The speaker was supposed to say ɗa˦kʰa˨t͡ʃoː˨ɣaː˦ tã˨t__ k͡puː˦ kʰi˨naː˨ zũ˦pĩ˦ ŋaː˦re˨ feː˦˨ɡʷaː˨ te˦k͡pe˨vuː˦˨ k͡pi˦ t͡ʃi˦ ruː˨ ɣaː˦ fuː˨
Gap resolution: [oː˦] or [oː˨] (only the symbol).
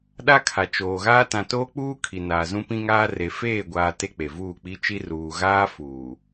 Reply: oː˦